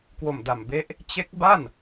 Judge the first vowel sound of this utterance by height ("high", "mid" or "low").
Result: mid